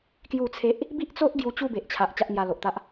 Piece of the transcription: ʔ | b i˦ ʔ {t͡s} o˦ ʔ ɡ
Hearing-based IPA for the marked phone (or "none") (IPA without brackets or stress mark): t͡s